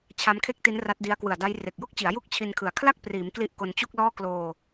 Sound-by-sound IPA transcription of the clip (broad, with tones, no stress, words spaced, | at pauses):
t͡ɕʰa˦˥mkʰe˥˩k̚ti˦˥n ra˦˥t̚di˦˥a̯ kwɯ˨˩a̯da˦˥j re˨˩k̚jo˥˩k̚t͡ɕi˩˦a̯ ju˥˩k̚t͡ɕʰi˧nkʰɯ˨˩a̯ kʰla˥˩k̚priː˩˦m kli˦˥ʔko˧nt͡ɕu˥˩k̚lɔː˥˩ kloː˧